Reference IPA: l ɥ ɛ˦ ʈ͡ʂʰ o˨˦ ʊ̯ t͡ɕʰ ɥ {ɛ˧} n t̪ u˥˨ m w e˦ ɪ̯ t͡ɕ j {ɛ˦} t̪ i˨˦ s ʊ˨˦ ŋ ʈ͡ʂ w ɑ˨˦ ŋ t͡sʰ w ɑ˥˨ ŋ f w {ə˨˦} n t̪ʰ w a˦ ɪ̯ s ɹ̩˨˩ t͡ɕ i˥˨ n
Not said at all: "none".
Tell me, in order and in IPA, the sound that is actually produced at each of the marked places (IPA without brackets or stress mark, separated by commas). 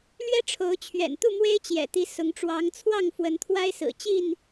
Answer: ɛ̰˨˩, ɛ̰˨˩, ə˨˦